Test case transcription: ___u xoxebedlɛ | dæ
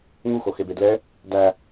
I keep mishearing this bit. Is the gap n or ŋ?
ŋ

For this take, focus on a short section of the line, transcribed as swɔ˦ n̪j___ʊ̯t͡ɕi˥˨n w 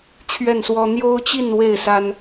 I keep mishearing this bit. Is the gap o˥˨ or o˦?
o˦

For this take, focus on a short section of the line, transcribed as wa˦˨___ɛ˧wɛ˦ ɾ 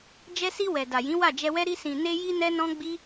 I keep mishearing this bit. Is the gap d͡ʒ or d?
d͡ʒ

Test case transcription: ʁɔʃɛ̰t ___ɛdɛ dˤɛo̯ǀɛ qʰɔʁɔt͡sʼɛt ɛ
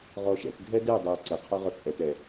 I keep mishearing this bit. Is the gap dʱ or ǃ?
dʱ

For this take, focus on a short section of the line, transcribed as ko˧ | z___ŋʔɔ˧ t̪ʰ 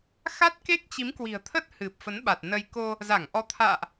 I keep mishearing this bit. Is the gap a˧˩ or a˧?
a˧˩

